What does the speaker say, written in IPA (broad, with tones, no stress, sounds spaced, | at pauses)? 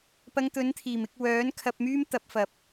p ɐ˧ ŋ t̪ ɵ˨˥ n t̪ʰ iː˨˩ m ɪ˧ k̚ w œː˨˥ n kʰ ɐ˧ p̚ m yː˥ m t̪ ɐ˨˥ p̚ f ɐ˨ p̚